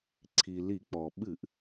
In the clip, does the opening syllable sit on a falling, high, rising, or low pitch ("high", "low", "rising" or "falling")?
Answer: low